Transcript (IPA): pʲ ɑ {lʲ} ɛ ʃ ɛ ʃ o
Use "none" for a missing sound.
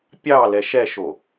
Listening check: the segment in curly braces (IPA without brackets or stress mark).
l